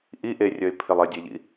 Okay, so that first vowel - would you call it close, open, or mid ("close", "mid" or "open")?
close